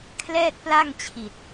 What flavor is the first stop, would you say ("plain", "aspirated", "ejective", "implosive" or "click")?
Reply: aspirated